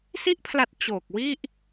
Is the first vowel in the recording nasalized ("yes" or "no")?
no